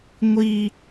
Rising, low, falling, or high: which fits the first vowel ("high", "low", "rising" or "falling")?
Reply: low